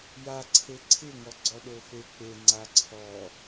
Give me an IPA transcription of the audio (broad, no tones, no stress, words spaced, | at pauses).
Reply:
jaǀʰe ǀʰɪŋɔ ɡ͡ǀɔɗofek͡pe ŋ͡ǀaǀʰɔ